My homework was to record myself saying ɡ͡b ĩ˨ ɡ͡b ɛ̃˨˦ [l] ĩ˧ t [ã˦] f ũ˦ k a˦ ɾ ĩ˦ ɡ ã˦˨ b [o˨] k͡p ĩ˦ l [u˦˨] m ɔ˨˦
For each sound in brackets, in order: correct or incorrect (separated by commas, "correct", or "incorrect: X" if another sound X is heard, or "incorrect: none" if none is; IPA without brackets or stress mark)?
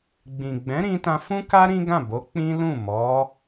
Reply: incorrect: ɾ, incorrect: ã˧, incorrect: o˨˦, incorrect: ũ˦˨